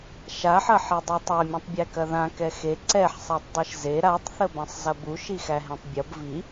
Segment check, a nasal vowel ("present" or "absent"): present